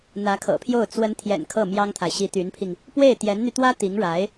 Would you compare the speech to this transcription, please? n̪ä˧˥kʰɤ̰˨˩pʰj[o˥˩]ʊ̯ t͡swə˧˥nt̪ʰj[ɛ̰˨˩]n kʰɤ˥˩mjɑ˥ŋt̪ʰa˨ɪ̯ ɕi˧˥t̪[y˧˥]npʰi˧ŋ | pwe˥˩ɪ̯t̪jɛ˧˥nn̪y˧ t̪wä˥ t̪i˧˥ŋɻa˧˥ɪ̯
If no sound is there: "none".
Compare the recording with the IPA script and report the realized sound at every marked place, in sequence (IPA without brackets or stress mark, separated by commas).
o˥˩, ɛ̰˨˩, y˧˥